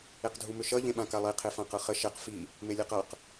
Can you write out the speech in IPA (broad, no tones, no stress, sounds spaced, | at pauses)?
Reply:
e q dʱ u m ʏ ʃ ʌ ʎ ẽ ɓ ã k a lˠ i qʰ e f ã q ɤ χ ə ʃ ɛ q f i | m e lʲ e q ʌ q